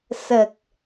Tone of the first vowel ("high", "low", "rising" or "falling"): low